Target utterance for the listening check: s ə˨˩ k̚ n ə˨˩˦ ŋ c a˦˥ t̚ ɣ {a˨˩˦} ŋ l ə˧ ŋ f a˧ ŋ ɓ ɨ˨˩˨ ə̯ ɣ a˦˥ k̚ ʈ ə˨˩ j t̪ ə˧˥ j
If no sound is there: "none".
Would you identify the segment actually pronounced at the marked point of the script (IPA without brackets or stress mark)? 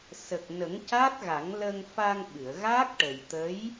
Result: a˨˩˦